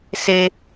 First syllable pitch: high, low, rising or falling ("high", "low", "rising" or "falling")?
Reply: high